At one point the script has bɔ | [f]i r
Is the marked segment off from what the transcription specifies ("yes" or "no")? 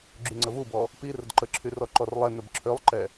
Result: yes